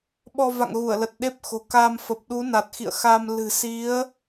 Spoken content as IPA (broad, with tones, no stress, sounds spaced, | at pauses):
ɓ ɔ˧ v a̰˧˨ ŋ ɣ u˧˩ ə̯ l ə˨˩ t̚ ɗ e˦˥ p̚ x o̤˨˩ k a˧ m f ə˨˩ p̚ ɗ u˨˦ n a˨˩ t̚ x ḭ˧˨ ə̯ x a˧ m l ɨ̤˨˩ s i˨˦ ə̯